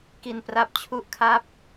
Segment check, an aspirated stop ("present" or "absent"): present